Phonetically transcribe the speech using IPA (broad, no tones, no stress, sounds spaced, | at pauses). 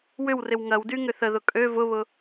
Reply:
w ʏ w r ɪ w ŋ ɐ w d y ŋ ʏ θ ə ð ʊ kʼ ø v ʊ β ʊ